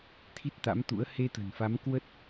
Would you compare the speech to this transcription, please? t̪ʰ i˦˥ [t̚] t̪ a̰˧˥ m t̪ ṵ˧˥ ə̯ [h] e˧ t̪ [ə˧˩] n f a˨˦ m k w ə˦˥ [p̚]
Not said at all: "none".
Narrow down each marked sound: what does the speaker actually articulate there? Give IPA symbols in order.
t̚, h, ə̤˨˩, t̚

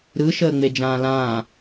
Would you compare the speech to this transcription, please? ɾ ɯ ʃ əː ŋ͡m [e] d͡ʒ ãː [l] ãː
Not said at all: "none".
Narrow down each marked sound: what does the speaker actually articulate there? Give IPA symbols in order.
e, l

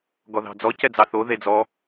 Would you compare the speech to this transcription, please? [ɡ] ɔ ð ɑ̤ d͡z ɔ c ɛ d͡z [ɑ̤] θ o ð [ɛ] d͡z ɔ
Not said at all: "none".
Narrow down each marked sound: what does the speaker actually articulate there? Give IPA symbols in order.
ɡ, ɑ, e

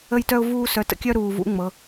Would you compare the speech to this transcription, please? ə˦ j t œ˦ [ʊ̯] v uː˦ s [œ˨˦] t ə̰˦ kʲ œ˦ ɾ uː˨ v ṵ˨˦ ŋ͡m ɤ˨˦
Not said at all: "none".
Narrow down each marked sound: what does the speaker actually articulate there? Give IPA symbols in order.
ʊ̯, œ˨˦

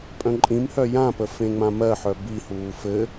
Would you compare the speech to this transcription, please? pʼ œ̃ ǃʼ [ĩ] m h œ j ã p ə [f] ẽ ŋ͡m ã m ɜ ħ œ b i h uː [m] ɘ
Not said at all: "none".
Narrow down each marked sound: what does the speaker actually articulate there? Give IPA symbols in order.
ĩ, f, f

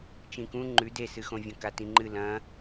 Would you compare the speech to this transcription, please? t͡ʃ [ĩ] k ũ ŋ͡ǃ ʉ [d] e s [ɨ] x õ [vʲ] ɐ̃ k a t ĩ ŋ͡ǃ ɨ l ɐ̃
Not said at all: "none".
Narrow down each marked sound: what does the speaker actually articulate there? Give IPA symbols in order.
ĩ, d, ɨ, vʲ

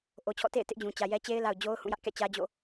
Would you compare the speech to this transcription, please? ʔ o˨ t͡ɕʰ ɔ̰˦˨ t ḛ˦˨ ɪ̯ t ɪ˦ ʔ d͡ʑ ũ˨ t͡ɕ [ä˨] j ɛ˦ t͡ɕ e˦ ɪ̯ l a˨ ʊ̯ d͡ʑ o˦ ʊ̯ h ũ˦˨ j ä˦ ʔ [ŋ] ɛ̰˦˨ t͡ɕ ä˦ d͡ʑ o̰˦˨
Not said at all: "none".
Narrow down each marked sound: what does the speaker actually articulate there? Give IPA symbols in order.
ä˨, k

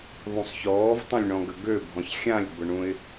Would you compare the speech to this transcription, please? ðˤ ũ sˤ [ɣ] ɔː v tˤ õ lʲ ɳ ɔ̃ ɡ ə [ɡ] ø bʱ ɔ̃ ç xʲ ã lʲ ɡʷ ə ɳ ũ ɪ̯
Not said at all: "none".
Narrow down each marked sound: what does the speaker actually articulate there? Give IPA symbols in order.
ç, ɡ

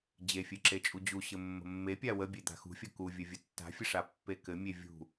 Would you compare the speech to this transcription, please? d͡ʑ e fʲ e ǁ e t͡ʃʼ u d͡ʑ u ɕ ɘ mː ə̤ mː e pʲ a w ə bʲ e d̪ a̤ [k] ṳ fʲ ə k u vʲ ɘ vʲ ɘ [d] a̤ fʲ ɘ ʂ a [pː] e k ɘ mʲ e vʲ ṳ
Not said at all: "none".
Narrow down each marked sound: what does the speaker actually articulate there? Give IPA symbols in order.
x, tː, pː

